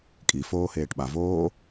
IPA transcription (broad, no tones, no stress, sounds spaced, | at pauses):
kʼ i f oː h eː ʈ ɓ a v oː